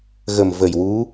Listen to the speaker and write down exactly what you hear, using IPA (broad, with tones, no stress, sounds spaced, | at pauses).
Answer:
ɣ ə˨˩ m v ə˨˩ j w u˧˥